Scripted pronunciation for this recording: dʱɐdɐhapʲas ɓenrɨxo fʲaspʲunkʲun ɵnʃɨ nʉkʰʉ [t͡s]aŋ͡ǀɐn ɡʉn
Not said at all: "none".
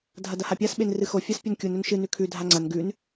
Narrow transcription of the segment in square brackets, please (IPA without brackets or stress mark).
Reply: dʱ